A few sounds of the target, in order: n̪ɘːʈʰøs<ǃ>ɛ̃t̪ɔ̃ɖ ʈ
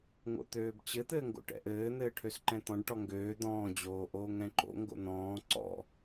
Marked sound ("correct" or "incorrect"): correct